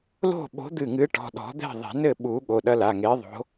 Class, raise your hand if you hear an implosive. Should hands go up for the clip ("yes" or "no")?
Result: yes